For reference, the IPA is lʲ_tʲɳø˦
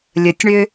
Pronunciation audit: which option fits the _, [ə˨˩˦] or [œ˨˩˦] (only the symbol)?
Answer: ə˨˩˦